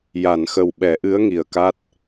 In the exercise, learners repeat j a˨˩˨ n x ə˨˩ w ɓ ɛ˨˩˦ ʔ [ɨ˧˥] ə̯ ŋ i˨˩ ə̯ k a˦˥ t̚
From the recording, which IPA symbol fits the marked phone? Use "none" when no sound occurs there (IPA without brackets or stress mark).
ɨ˧˥